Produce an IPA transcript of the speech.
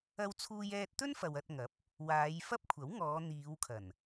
ɐ˧ w t͡sʰ uː˧ j ɛː˧ t̚ t̪ ɵ˥ n f ɐ˨ w ɐ˧ t̚ ŋ ɐ˨˥ p̚ | w aː˨˧ j f ɐ˥ p̚ kʷʰ ɐ˨˥ w ŋ ɔː˨˧ n̪ iː˨˧ w kʰ ɐ˨˩ n

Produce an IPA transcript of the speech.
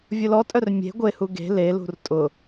vʲ ʊ l ɔ tʼ œ r mʲ e̤ ɡʷ e h u ɡ e̤ l e l ṳ r tʼ ʊ

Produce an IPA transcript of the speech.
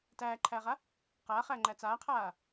t æː ǃʰ æː ʁ a | q aː χ æ ŋ͡ǃ æ t͡s aː qʰ aː

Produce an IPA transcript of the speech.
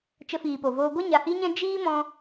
t͡ʃ ə˧ f iː˨ p o˨ v oː˧ ɡʷ a˦ ɲ a˨ h i˦ ɲ ɛ̃˦ d͡ʒ iː˦ m ɔ̃˧

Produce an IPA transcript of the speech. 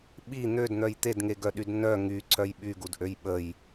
ɓ i n̪ ø d n̪ œ j t̪ e d ŋ e ɡ œ ɗ y d n œ ŋ y ǀʰ œ j ɓ y ɡ u d ʔ ø j ɓ ə j

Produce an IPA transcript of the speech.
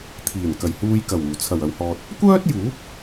t̪ʰ iː˨˩ n k ɐ˨˩ j h uː˧ j k ɐ˨˩ w uː˨˩ t͡sʰ ɐ˨˩ w ɐ˨ w h ɔː˨ t̚ | kʷ œː˥ t̚ j uː˨˥ p̚

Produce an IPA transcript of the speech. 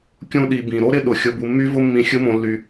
kʲ ũ˦ ɗ i˨ b ĩ˩ ɾ o˥ ɾ ɪ˦ ɗ ʊ˩ xʲ ʊ˨ b u˨ mː y˦ v ʊ˦ mː ĩ˨ xʲ ɯ˦ m õ˨ lː y˩

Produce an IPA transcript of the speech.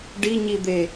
ɖ i ɲ i d̪ e

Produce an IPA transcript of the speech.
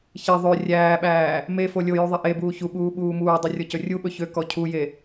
ç e ðˤ ø rʲ æː ɓ æː | m e f o lʲ o j u ðˤ e ʔ e b uː ç u ɓ uː ɓ uː m uː dˤ ɵ rʲ ɔ c ɵ rʲ u ɓ ɵ ç ø k ɔ cʰ u j e

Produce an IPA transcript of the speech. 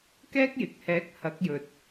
k ɛː˥ k̚ j ɪ˨ k̚ h ɛː˨˥ k̚ h ɐ˨˥ k̚ j ɵ˨ t̚

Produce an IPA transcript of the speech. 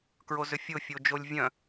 k ɹ o z ʏ fʲ ʊ fʲ o d͡ʒ o lʲ vʲ œ̃

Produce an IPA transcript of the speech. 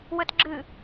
w ə t ɡ͡ǁ ɨ

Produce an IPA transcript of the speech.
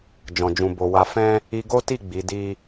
d͡ʒ ɔ̃˨ d͡ʒ ũ˨ b o˨ w a˨ f ɛ̃˧ | i˧ ɡ o˦ t i˦˨ ɡ͡b i˨˦ d i˦

